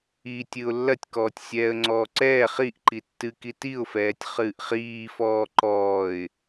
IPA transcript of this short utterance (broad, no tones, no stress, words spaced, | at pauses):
i tʲɨʊ̯lːɐtʲkɔːtʲ sʲɛːə̯ŋ͡ǀɔːǀɛː χiʔ ǃitːɨ kitiʊ̯fɛːtʲ χɨːʔχiːfɔː ǃɔːɪ̯